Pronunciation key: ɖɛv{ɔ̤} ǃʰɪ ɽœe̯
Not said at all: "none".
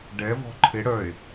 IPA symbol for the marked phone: ɔ̤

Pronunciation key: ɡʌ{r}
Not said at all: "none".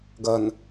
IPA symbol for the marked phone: n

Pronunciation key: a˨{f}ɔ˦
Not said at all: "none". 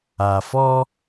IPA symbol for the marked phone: f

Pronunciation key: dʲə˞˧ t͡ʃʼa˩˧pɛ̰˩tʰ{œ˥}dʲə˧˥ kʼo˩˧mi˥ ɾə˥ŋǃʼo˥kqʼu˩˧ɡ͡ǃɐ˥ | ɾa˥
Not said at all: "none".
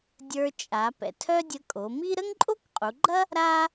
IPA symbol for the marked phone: œ˥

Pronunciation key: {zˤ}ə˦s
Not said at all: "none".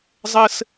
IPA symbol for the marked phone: zˤ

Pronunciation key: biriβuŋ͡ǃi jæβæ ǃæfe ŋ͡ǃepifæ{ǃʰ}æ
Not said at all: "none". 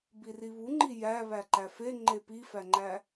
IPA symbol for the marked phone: ŋ͡ǃ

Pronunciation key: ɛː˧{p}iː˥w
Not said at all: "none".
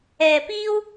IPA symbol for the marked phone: p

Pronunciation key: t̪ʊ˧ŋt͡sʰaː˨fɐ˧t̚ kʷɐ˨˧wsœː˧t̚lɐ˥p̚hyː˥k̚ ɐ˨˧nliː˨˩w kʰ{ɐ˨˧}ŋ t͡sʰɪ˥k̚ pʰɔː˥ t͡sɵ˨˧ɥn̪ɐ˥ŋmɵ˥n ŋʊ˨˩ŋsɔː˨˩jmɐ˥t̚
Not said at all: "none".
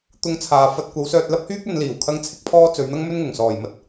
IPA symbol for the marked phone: ɐ˥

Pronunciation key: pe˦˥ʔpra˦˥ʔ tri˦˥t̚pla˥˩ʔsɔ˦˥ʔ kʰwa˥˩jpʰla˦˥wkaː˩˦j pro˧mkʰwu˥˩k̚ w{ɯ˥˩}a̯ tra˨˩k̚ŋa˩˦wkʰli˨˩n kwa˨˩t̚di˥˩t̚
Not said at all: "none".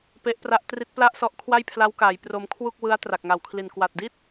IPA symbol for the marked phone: ɯ˦˥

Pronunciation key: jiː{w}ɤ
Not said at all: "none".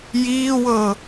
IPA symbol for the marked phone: w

